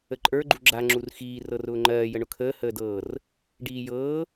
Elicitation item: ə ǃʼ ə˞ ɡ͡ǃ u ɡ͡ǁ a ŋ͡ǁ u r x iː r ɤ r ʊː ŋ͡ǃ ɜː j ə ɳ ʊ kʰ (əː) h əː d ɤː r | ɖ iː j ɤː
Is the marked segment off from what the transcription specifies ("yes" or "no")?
no